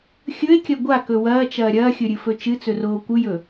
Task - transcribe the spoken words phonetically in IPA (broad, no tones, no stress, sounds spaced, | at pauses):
xʲ ɵ e̯ kʲ ɐ ɡʷ a k ɵ w ɐː t͡ʃ ɐː ɾʲ ɐː xʲ ɵ ɾʲ ɨ f ɵ t͡ʃ ɨ t͡s ɵ r oː kʷ ɨ j ɵ